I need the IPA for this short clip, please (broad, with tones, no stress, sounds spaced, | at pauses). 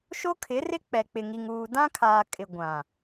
ʃ o˦ kʰ ɪ˨˦ r ɪ˦ k͡p ɛ˨ k͡p ɪ˨ ŋ i˨ ŋ uː˨ d ã˦ kʰ aː˨ kʼ ɪ˨ ɡʷ ã˨